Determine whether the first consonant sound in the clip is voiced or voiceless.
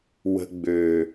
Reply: voiced